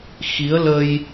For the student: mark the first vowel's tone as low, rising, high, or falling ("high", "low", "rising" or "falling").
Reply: rising